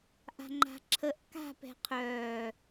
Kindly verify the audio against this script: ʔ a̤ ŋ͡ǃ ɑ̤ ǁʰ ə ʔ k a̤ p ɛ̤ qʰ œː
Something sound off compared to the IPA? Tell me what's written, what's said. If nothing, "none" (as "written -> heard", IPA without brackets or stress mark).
ɑ̤ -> a̤